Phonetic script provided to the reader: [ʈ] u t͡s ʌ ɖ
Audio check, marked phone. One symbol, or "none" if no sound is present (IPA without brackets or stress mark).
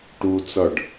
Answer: ʈ